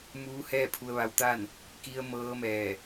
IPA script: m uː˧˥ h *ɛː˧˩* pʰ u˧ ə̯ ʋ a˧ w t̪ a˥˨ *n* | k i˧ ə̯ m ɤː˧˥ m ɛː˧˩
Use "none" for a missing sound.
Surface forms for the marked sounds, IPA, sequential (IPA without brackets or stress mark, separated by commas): ɛː˥˨, n